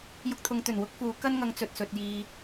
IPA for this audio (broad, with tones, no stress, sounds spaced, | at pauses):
j ʊ˧ k̚ t̪ʰ ʊ˨˧ ŋ t̪ ɵ˨˩ n w ʊ˥ k̚ f uː˨˥ k ɐ˥ n ŋ ɐ˨˧ ŋ t͡s ɵ˨ t̚ s ɵ˨ t̚ j iː˧